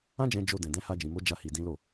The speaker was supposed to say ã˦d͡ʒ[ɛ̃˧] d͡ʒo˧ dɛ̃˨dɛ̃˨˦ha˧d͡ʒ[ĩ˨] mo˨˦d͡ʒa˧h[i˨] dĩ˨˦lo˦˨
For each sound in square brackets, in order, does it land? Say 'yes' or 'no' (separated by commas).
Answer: yes, yes, yes